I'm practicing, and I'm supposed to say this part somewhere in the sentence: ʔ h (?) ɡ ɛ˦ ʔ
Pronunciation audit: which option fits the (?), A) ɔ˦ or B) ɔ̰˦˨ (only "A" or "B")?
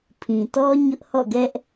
B